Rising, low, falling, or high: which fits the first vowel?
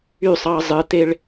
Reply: falling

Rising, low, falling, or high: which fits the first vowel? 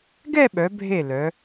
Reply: falling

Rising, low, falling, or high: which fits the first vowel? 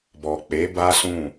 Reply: low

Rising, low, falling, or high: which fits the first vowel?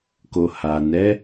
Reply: low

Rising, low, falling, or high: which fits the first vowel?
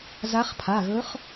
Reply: rising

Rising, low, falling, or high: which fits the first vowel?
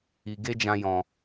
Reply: low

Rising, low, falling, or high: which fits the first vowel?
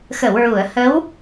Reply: low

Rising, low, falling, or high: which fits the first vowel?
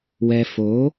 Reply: low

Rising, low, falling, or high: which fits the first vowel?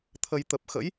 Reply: low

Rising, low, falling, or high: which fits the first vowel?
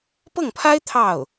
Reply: falling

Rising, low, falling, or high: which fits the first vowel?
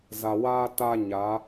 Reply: low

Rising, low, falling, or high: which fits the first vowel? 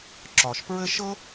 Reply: low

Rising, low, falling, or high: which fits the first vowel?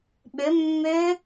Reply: rising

